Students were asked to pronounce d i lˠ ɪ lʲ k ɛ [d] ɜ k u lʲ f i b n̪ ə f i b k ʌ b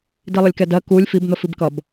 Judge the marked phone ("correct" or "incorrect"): correct